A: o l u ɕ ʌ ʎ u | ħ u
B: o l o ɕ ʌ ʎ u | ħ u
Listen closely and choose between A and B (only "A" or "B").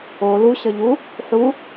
A